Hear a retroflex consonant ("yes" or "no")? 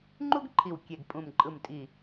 no